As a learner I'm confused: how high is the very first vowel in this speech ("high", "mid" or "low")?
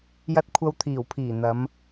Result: low